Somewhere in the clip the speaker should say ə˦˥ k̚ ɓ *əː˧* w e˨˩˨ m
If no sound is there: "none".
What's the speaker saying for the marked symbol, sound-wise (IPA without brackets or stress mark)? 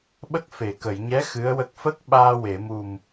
aː˧